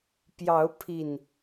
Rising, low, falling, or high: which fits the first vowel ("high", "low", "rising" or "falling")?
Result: rising